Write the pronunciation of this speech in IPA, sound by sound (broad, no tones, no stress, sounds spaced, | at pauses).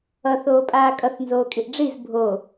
ʌ θ oː pʼ aː kʼ ʌ θ n z oː kʼ i ʔ ɖ͡ʐ i z bʱ o